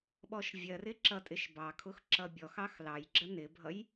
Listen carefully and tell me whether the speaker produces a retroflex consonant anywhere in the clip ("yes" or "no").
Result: no